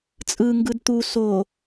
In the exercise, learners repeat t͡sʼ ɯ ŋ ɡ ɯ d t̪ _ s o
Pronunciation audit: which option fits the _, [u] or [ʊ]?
u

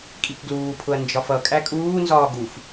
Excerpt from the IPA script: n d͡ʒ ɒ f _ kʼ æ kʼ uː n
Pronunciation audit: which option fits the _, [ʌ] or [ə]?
ʌ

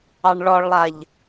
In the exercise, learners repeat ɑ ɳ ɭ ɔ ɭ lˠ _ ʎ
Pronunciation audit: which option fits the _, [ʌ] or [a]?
a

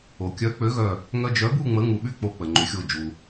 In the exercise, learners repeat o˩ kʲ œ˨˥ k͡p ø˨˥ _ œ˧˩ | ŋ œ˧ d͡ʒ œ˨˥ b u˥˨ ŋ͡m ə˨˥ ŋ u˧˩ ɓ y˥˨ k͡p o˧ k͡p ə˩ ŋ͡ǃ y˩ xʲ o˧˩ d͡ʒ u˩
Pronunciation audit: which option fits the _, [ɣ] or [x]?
ɣ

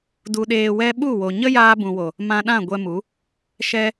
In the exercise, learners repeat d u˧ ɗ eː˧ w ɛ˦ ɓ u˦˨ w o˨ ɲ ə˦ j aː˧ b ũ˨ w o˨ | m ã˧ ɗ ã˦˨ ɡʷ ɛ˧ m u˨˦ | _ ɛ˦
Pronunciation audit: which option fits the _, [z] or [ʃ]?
ʃ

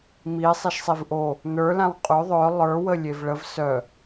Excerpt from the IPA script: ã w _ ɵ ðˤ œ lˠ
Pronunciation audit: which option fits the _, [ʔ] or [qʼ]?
qʼ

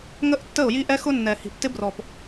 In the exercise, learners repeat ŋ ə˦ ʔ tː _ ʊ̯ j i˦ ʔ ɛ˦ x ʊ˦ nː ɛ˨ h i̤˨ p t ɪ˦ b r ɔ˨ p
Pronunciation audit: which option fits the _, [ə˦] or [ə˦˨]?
ə˦˨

